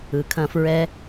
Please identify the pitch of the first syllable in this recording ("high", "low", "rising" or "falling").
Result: low